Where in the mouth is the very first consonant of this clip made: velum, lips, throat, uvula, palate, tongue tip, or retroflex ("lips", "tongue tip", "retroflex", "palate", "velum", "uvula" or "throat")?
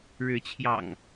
retroflex